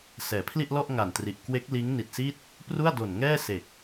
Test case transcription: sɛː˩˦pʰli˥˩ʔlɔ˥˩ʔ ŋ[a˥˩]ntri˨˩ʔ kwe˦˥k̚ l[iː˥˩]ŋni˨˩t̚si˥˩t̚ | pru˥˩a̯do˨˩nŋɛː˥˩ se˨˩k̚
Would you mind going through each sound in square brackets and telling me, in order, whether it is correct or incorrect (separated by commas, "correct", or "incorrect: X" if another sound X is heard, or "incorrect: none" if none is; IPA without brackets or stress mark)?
incorrect: a˨˩, incorrect: iː˦˥